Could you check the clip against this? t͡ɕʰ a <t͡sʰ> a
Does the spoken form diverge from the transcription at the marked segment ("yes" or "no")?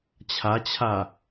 yes